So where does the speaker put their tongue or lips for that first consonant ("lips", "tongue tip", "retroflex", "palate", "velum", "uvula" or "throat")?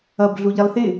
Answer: lips